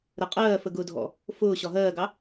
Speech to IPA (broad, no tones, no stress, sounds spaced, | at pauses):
ɾ ə qʼ ɜː f ə ɡ ʊː dʱ ɔ̰ | f ʊː ɕ ɒ ɦ ɜː ɡ ɑ